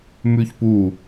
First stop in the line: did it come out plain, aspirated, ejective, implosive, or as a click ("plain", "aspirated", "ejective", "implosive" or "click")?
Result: plain